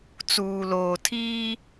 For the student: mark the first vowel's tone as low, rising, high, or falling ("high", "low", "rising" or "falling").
low